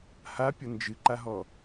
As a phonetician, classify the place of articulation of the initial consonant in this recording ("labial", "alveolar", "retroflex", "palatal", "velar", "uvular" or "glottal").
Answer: glottal